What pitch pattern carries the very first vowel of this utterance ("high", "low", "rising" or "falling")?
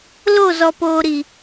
falling